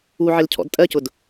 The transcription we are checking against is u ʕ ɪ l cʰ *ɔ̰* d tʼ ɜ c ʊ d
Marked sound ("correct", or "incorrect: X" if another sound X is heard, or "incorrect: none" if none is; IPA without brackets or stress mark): correct